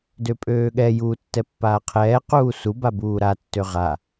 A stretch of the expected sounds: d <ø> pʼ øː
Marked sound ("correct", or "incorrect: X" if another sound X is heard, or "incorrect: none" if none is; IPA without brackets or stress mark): correct